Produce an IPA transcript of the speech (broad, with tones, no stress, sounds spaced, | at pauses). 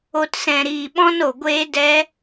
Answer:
o˨ t s ɛ̃˨ ɾ iː˨ ɓ ɔ̃˧ n o˨ ɡʷ eː˧ d ɛ˧